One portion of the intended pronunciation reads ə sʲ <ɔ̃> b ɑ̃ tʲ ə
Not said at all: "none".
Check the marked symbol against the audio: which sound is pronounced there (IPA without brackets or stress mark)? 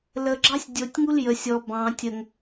ɔ